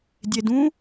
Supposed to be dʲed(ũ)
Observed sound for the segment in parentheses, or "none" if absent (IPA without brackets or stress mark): ũ